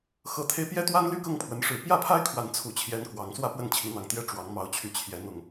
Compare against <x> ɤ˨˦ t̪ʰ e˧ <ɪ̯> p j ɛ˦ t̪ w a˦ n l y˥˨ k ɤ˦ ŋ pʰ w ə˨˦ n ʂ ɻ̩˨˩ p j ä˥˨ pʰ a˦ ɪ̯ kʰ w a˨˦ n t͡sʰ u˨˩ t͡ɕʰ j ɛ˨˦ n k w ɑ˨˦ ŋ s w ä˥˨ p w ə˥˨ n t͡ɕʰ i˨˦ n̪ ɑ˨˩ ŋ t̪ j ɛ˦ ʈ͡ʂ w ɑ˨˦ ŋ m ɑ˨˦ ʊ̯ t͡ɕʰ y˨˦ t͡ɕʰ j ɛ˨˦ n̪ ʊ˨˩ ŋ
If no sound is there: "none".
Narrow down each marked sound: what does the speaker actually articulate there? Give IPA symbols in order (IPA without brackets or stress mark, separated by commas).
x, ɪ̯